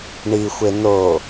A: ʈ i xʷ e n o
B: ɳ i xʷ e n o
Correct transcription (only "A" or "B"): B